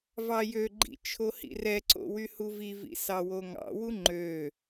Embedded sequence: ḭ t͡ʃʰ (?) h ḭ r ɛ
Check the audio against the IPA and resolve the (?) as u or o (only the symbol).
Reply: o